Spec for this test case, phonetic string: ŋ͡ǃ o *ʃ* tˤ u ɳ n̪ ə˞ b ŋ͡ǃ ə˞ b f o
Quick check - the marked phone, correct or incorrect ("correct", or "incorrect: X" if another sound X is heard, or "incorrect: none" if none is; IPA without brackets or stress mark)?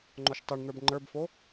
correct